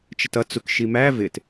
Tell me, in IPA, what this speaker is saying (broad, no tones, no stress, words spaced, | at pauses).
t͡ʃətʌ t͡sukʃimæ vɪt